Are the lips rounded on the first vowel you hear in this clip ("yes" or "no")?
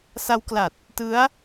no